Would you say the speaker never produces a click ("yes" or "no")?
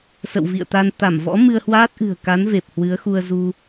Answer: yes